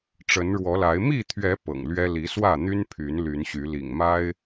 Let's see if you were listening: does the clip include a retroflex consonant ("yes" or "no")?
yes